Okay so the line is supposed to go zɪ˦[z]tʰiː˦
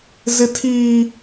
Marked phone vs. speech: incorrect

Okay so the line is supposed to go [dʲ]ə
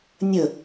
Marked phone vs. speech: incorrect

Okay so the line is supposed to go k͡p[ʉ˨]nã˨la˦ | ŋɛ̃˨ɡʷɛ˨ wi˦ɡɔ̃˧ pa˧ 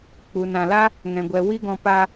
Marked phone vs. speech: incorrect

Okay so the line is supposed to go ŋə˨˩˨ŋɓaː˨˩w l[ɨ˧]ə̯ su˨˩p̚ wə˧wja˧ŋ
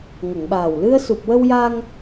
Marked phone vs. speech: correct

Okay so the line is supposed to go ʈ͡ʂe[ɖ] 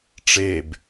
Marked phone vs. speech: incorrect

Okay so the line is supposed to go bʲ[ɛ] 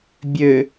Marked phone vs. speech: incorrect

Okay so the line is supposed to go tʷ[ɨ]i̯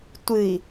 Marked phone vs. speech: correct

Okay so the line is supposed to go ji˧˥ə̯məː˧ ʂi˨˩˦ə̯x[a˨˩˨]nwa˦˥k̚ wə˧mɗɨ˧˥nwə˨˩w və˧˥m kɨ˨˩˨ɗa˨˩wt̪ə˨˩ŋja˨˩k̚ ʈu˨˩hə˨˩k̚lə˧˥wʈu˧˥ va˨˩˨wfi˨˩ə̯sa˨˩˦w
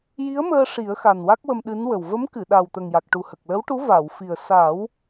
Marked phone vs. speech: incorrect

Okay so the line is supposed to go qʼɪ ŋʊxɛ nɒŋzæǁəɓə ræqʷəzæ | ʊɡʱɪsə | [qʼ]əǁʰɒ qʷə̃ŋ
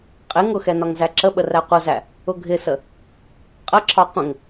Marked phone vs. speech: correct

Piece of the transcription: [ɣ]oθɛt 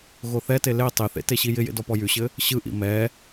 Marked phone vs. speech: correct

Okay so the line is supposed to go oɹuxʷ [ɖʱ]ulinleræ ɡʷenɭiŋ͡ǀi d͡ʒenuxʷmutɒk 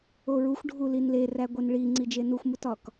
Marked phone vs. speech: correct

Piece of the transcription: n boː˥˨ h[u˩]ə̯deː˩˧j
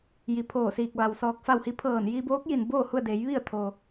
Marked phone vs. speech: incorrect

